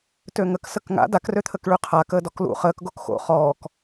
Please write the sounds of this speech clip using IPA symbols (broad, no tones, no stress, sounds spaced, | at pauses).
t ø ŋ ə k s ə k ŋ a̰ d a k r ø t̪ʰ ə k ɭ y qʰ a k əː d ɔ k l ṵ χ əː k ɡ o k x o̰ χ ɔː k